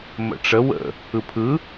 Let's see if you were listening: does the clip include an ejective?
no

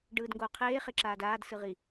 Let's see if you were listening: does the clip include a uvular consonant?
yes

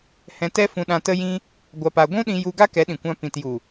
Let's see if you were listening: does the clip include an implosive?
yes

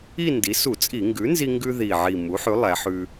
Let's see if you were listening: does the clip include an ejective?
yes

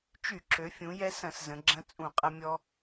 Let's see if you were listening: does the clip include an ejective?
yes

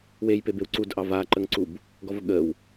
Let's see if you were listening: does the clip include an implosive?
yes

